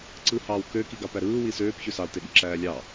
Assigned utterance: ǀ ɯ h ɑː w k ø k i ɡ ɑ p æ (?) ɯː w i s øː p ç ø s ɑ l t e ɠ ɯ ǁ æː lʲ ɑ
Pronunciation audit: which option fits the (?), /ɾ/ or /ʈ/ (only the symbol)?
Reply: ɾ